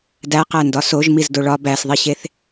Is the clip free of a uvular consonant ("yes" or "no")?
no